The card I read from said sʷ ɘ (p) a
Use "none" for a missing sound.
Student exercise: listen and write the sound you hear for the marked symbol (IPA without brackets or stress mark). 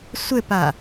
p